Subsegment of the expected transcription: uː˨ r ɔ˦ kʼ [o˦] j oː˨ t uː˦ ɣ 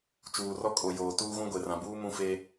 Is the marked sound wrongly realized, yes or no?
yes